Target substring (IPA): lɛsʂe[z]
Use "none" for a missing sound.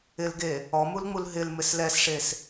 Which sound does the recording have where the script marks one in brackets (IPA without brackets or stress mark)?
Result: s